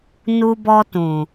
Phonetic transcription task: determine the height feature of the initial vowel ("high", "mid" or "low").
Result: high